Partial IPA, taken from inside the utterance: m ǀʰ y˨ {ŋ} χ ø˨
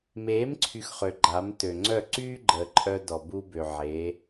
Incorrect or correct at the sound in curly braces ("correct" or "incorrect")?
incorrect